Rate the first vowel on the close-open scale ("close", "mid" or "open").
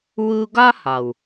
close